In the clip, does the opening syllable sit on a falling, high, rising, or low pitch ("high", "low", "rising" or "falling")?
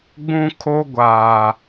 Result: high